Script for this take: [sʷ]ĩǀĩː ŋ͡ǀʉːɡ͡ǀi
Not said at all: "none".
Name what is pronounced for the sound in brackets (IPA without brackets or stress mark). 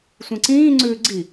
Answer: sʷ